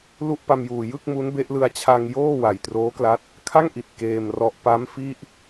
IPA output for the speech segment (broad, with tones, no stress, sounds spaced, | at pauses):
l u˥˩ ʔ p a˧ m j uː˨˩ j ɯ˥˩ k̚ m u˦˥ n b e˦˥ ʔ l ɯ˧ a̯ t͡ɕʰ a˧ ŋ j oː˥˩ w a˨˩ j t r oː˦˥ k l a˦˥ t̚ | kʰ a˥˩ ŋ ʔ i˨˩ t̚ k eː˧ m r ɔ˦˥ ʔ p a˦˥ m f i˥˩ ʔ